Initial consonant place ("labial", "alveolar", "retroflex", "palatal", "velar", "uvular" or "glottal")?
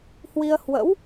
glottal